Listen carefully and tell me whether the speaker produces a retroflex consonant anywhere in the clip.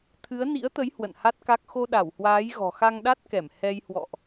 no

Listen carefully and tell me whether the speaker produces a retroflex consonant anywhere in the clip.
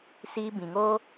no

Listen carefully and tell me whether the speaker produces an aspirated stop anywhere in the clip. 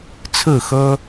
yes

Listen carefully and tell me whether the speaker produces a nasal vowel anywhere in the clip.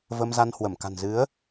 no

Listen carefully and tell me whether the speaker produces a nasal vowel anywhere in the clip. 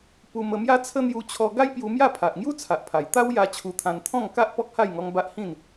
yes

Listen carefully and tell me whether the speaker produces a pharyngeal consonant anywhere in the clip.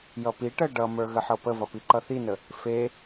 yes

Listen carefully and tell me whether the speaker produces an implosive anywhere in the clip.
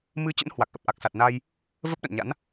yes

